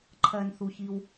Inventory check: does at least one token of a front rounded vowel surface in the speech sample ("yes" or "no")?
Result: no